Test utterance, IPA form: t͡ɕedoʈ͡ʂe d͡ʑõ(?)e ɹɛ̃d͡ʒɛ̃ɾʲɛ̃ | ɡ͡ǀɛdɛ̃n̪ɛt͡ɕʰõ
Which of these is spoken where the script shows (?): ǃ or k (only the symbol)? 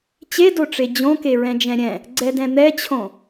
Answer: k